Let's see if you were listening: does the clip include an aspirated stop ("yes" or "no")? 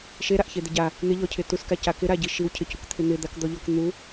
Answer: yes